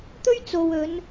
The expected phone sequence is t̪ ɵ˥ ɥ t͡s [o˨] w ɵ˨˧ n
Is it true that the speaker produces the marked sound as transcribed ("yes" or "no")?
yes